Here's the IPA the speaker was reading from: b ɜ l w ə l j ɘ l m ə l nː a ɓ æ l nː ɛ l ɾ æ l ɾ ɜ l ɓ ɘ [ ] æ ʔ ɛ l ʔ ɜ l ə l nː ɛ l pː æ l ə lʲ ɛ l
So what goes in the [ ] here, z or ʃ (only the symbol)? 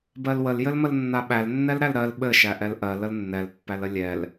ʃ